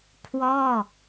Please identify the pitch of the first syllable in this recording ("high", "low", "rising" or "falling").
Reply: falling